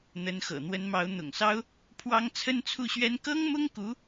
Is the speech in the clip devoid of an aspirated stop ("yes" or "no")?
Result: no